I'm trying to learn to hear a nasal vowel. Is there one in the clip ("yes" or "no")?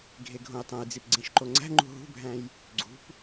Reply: yes